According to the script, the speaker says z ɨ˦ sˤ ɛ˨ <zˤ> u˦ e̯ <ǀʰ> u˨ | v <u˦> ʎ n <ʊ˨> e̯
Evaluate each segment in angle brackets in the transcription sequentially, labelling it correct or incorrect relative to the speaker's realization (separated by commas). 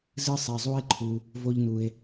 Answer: correct, incorrect, incorrect, incorrect